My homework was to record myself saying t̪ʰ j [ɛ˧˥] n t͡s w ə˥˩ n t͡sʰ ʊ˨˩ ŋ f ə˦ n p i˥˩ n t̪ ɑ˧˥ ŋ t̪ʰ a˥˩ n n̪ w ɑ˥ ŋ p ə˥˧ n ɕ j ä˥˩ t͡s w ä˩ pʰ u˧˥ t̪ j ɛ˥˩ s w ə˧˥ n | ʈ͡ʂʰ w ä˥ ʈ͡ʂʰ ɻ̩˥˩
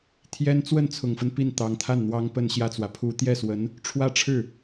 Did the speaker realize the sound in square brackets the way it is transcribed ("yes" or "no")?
no